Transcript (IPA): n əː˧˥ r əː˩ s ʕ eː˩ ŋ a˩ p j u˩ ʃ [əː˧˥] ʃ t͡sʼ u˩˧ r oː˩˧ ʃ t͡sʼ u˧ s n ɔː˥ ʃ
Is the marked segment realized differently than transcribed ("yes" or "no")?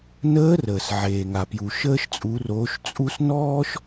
yes